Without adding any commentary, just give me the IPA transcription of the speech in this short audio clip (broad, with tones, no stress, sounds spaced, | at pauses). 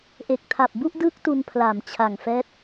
ʔ e˨˩ k̚ tʰ a˨˩ p̚ b u˥˩ ʔ d ɯː˦˥ k̚ t u˧ n pʰ l a˨˩ m t͡ɕʰ a˨˩ ŋ f ɛː˦˥ t̚